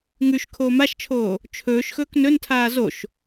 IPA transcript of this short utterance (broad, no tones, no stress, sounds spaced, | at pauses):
ŋ ʉ ʃ kʰ oː m a ʃ t͡ʃʰ oː | t͡ʃʰ ɵː ʃ x ɵː k n ɵ n tʰ aː z o ʃ